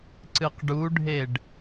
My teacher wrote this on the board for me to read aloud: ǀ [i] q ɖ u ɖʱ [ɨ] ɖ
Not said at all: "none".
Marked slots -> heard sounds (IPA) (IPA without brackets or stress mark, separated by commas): ɨ, e